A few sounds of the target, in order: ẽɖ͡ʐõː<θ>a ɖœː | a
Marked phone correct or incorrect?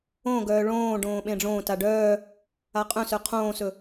incorrect